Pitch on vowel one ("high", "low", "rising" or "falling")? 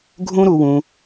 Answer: high